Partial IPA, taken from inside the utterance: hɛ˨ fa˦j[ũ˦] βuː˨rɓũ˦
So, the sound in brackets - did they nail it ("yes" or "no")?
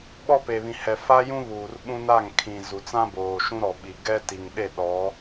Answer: yes